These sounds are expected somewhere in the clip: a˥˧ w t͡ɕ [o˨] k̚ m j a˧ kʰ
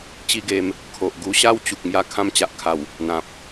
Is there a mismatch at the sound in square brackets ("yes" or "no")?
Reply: yes